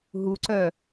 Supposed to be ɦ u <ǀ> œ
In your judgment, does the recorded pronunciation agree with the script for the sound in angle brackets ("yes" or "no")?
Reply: yes